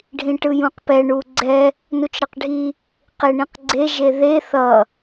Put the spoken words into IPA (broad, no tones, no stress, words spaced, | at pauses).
ɖʱĩʈɯjũqpɛ ɳuɡ͡ǀɛ | nut͡ʃɾʌqɖʱi | qeɳĩqɡ͡ǀe ʒeðe θʌ